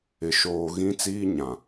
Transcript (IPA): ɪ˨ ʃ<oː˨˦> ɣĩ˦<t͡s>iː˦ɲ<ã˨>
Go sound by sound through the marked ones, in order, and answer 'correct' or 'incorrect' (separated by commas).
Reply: incorrect, correct, correct